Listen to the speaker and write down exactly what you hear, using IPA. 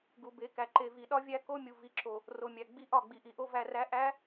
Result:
ɡ u˨ b e˨˦ k æ˨ ǃ e˨ v i˨ ɗ ɒ˦ vʲ æ˦ k o˦ mʲ u˨ v i˨ ǁ o˨ | r o˨ mʲ æ˨ ɡ͡b i˦ ʔ ɒ˦˨ ɡ͡b i˨ ʔ i˨ ʔ o˦ v æ˨ r æ˨˦ ʔ æ˨˦

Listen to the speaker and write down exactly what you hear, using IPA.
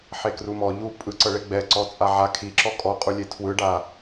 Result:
ħ e k r u m ɔ ʎ u pʼ ɯ ǀ ɤ ɭ e ɡ͡b ɛ ǀ ɔ t͡sʼ a ʕ a kʰ i ǁ ɔ kʼ ɔ qʼ u lʲ e tʰ w ɯ ɖ a

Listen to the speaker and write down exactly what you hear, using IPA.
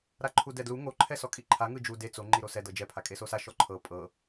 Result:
ɾ a ǃʰ u d ɛ d l u ŋ o ǃʰ ɛ s ɔ kʼ i ǃʰ a ŋ ɯ d͡ʒ u d e t͡s o ŋ͡ǃ i ɾ o s ɛ d ɤ d͡ʒ ɛ pʰ a kʼ e s o s a ʃ ɔ ǃʰ ɤ pʼ ɤ

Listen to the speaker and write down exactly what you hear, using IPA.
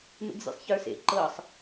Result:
m ḛ ɡ zʲ ḛ sˤ ç ə˞ s ḛ ǃ ɤ sˤ

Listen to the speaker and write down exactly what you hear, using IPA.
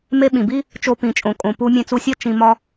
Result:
m e˧ ɓ ĩ˨ b i˦ | t͡ʃ o˧ p ĩ˨ t͡ʃʼ õ˨ kʼ õ˨ p u˧ mʲ ẽ˧ t͡s u˧ sʲ ɒ˦ t͡ʃ ĩ˧ m ɒ˦

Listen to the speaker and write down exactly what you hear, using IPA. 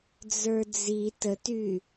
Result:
d͡z ə˞ d͡z i t ə t y

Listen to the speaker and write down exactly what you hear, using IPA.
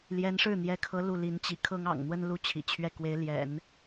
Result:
l j ɛ˧˥ n ʂ ɻ̩˥˩ n̪ j ɛ˧˥ kʰ ɤ˧˥ l u˥˩ l i˧˥ n t͡ɕ ḭ˨˩ kʰ ɤ˥ ŋ ɑ̰˨˩ ŋ n̪ w ə˥ n l u˥˩ t͡ɕʰ ḭ˨˩ t͡ɕʰ ɥ ɛ˥˩ k w e˧˥ ɪ̯ l j ɛ̰˨˩˦ n

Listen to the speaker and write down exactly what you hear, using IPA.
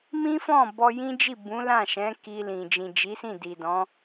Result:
m ĩ˦ f ɔ̃˦˨ b ɔ˧ j ĩ˦ d͡ʒ i˦˨ b ũ˨˦ l ã˦˨ ʃ ɛ̃˨˦ k i˧ l ĩ˨ d͡ʒ ĩ˨ d͡ʒ i˨˦ s ĩ˦˨ d i˨ d ɔ̃˨˦

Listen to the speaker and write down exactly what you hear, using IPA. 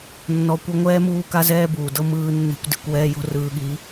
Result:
nː ɔ˨ kʷ ɤ˧ ŋʷ ɛː˧ m uː˧ k a˧ z ɛː˧ b uː˨ d ɤ˦ m ɯː˧ nː ɛ̤˦ kʷ d i̤˧ kʷ w ɛː˦ j o̤˦ r ɯː˧ ɠ i˨˦

